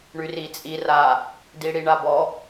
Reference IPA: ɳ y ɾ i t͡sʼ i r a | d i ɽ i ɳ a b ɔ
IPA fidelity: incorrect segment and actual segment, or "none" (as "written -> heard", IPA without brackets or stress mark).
ɾ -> r